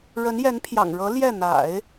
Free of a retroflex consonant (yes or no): no